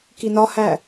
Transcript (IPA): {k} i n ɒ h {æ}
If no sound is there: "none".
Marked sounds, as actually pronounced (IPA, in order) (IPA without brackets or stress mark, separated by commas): k, æ